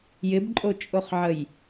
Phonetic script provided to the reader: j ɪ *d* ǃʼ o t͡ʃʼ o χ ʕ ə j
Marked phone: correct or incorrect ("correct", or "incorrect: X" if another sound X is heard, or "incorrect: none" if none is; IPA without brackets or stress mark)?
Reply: incorrect: b